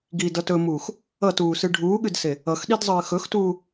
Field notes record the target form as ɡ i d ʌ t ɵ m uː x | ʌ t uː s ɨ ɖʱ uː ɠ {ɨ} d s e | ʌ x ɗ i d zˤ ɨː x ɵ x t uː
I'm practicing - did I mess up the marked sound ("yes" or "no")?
no